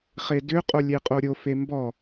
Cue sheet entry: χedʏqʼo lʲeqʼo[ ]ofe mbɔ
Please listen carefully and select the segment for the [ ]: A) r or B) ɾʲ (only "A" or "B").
B